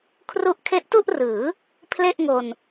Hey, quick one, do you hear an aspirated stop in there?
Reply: yes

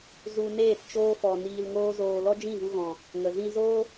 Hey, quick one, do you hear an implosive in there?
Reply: no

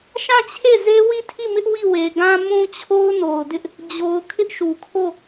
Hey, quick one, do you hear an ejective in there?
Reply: no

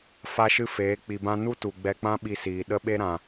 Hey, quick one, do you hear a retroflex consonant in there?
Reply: no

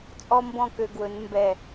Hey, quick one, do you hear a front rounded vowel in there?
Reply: yes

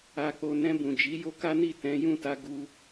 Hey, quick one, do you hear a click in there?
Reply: no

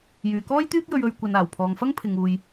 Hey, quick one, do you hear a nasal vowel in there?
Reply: no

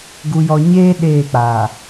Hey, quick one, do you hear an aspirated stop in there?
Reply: no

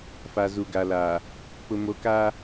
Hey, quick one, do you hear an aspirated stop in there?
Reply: no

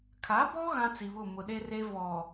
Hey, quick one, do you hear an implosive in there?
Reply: yes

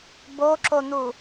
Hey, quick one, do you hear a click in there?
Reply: yes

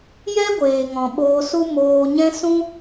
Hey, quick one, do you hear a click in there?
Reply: no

